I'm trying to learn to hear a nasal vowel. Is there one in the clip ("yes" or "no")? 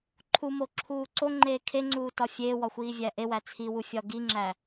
no